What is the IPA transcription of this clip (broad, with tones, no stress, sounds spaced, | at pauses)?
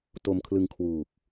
t o˧ m kʰ l ɯ˧ ŋ kʰ w uː˨˩ k̚